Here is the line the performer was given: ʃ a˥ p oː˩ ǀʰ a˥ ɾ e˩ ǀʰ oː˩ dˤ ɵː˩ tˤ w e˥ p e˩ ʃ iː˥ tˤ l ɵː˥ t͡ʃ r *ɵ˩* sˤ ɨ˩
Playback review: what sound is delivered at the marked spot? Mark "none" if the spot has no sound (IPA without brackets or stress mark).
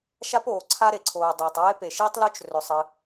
ɵ˩